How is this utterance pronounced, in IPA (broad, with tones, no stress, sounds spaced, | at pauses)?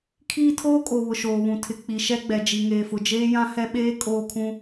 kʰ iː˦ tʰ oː˦ kʼ o˨ β ʊ˨ ʃ oː˨ β ũ˨ tʰ ɪ˨ k͡p i˨ ʃ ɛ˦ ɡ͡b ɛ˨ d͡ʒ i˨ ŋ eː˨ f ʊ˨ d͡ʒ eː˦ j ã˦ h ɛ˦ ɓ eː˦ kʼ oː˦ kʰ ũ˦